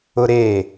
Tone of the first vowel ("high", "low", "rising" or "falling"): high